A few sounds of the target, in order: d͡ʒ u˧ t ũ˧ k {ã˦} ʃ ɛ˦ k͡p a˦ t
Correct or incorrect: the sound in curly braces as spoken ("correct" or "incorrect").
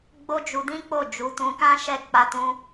correct